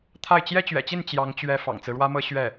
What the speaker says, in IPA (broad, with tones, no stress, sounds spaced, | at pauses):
t̪ʰ a˥˩ ɪ̯ t͡ɕ j ɛ˥ t͡ɕ ɥ ɛ̰˨˩ t͡ɕ i˥˩ n t͡ɕ j ɑ˧˥ ŋ t͡ɕ ɥ ɛ˧˥ f ɑ̰˨˩ ŋ t͡s ɹ̩˦ ɻ w ä˥ m ɤ˥ ɕ ɥ ɛ˥˩